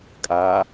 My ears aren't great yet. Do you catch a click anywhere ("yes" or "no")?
no